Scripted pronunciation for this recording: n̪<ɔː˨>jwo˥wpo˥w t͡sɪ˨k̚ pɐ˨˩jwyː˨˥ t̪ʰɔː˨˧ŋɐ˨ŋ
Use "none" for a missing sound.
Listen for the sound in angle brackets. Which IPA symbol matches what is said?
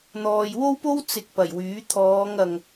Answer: ɔː˨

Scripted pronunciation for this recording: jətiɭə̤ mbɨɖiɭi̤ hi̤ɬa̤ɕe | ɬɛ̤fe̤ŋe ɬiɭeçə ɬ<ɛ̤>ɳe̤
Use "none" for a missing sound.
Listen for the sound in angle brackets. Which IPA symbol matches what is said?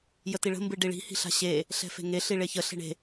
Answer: e̤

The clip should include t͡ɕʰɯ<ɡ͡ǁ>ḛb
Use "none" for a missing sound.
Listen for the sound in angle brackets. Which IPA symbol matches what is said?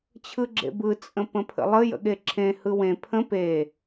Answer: ɡ͡ǁ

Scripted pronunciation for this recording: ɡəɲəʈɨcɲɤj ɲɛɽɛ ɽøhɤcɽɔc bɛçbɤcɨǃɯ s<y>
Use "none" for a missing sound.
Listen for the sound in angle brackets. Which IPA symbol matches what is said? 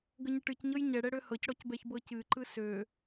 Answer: ø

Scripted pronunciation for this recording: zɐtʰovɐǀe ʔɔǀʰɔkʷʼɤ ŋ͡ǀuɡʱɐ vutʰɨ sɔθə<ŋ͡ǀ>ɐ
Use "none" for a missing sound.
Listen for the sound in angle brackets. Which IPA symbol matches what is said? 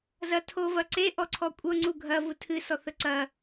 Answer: ǀ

